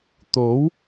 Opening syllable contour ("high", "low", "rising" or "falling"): rising